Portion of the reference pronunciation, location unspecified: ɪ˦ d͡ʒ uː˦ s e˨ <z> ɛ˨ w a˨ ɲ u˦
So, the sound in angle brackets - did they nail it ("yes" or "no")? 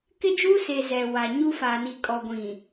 yes